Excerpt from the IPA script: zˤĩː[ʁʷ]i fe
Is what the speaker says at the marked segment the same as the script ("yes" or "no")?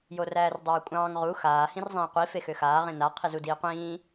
no